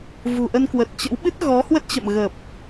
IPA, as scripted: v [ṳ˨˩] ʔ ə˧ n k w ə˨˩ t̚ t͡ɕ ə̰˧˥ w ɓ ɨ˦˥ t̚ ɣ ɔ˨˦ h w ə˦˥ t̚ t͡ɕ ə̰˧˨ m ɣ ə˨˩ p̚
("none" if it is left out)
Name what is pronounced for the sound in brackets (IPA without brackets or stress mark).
ṳ˨˩